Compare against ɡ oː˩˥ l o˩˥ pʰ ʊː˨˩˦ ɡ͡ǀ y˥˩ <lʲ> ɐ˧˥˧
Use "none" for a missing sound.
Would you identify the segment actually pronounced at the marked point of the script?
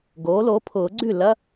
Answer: l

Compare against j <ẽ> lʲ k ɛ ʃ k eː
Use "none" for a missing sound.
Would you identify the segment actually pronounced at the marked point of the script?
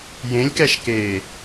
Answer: ẽ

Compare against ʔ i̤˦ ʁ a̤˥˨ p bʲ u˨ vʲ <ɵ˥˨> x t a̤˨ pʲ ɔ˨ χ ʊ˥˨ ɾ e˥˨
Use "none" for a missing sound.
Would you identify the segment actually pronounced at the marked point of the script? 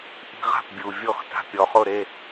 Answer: ɔ˥˨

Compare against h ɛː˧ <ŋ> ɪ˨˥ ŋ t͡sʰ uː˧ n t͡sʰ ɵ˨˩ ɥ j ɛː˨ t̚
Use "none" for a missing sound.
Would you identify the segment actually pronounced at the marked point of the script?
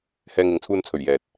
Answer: ŋ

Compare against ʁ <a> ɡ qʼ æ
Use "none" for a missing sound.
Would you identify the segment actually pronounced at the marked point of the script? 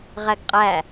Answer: æ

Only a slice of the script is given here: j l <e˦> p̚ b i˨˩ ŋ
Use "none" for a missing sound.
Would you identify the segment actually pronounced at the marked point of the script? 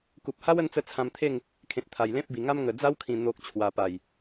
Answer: ẽ˦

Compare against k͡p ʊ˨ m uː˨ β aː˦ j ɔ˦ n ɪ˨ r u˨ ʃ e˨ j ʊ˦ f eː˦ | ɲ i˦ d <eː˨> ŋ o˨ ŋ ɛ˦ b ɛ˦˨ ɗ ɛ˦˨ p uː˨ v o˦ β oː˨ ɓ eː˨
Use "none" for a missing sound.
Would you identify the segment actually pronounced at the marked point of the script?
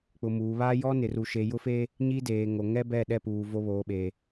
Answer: eː˨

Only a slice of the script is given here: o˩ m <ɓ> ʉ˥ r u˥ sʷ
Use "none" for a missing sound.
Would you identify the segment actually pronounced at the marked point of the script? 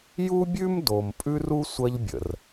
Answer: pʼ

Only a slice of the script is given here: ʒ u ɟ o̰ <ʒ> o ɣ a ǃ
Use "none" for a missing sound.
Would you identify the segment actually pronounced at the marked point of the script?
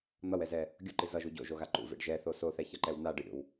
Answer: ʒ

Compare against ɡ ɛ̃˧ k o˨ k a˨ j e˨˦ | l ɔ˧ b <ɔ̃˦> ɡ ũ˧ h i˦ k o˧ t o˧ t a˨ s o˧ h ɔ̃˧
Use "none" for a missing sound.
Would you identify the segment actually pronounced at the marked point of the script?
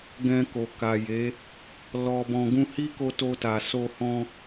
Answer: ɔ̃˧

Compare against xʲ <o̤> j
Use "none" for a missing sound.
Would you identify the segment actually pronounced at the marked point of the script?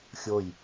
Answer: o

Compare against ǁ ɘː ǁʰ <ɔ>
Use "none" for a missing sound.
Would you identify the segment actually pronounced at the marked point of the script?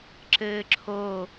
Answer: o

